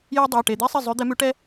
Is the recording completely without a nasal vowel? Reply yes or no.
yes